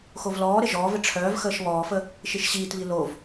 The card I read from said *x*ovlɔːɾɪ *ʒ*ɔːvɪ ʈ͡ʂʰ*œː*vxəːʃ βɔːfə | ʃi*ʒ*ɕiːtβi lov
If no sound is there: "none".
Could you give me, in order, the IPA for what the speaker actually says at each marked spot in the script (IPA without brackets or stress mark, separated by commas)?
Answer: x, ʒ, œː, ʃ